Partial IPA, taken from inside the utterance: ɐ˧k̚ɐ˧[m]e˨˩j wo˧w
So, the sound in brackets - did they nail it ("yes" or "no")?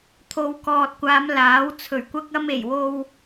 yes